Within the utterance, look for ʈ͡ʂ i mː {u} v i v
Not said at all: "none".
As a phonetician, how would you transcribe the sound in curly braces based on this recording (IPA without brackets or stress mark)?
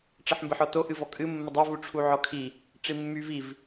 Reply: y